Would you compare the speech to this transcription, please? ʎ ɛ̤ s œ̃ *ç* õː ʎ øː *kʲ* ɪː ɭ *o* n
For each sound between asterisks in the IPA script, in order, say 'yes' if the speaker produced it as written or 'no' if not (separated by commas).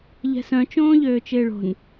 no, no, no